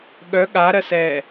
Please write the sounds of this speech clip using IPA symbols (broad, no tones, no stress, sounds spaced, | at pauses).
ɠ œ ɠ a ɾ ɜ s ɛː